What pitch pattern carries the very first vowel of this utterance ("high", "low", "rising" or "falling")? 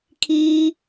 high